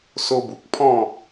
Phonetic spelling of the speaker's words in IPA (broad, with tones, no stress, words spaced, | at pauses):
so˧bu˨k̚pʰɔ̃˥˧